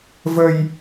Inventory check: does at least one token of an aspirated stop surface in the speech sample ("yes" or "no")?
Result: no